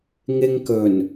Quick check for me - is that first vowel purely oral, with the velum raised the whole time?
yes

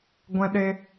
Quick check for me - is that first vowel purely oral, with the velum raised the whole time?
no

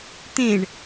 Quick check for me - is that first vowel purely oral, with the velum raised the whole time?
no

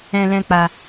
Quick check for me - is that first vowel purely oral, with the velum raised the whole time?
no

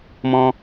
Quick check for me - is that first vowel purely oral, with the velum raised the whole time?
no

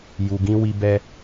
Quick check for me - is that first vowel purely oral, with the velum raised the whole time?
yes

